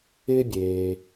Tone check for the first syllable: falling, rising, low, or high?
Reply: high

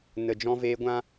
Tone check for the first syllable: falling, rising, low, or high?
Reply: low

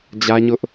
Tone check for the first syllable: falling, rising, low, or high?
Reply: high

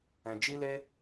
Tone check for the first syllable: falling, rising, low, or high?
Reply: low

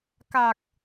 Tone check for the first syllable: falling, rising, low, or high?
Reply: low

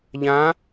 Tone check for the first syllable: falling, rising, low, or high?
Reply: rising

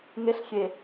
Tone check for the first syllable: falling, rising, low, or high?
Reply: rising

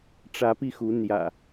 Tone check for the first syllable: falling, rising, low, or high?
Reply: rising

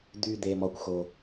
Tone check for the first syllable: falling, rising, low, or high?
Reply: low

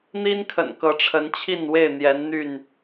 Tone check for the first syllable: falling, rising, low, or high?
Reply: high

